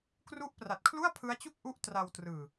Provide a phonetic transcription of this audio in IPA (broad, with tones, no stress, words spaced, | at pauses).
kru˦˥ʔpra˨˩t̚kʰlu˥˩a̯ pʰɯ˦˥a̯t͡ɕu˥˩k̚ʔu˦˥ʔ tra˧wtrɯː˨˩